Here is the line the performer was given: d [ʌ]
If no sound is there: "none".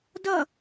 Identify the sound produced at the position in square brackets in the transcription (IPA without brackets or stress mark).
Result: ʌ